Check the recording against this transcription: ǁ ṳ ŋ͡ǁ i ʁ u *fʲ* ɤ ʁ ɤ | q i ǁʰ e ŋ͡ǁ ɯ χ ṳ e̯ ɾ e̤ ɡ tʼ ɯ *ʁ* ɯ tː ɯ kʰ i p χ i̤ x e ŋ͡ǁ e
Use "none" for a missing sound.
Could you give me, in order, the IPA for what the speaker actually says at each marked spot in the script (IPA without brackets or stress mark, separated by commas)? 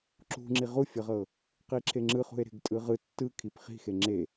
fʲ, ʁ